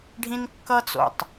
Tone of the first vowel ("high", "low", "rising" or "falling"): high